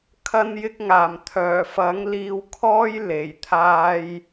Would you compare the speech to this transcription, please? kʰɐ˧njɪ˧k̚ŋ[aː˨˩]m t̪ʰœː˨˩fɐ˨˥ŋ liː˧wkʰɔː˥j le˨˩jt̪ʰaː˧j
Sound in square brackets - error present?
no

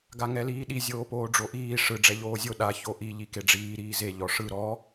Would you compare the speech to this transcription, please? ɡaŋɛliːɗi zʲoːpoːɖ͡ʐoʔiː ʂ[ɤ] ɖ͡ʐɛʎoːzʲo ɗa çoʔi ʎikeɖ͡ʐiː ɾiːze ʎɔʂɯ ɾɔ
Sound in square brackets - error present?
yes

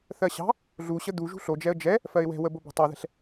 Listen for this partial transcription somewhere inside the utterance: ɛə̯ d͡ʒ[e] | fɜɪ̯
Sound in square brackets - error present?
yes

